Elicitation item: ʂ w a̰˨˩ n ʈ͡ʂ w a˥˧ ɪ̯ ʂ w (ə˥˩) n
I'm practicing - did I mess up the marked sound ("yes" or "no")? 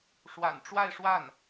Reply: yes